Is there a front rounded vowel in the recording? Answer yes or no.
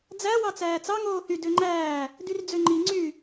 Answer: yes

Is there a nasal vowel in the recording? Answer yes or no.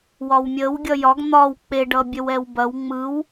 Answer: no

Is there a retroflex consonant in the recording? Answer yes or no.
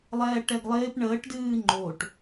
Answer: yes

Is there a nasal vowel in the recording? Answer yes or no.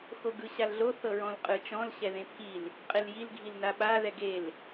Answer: yes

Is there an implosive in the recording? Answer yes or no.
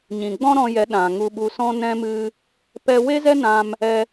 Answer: yes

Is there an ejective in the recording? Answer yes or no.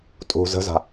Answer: yes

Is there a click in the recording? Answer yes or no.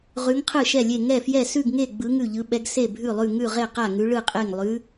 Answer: no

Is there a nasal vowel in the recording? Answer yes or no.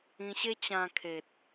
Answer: yes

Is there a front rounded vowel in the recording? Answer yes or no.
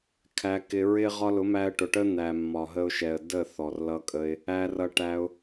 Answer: no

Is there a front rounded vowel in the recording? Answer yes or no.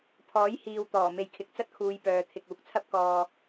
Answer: yes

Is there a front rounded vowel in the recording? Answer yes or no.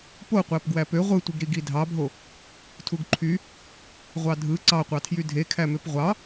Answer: yes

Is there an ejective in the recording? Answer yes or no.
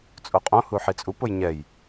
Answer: yes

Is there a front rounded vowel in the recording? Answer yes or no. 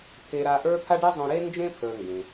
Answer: no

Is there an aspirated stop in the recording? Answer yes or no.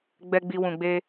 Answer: no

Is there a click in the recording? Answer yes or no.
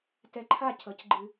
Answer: yes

